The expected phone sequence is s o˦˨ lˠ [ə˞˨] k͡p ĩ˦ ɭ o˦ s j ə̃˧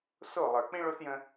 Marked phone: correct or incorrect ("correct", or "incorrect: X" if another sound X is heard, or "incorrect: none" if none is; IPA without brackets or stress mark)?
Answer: correct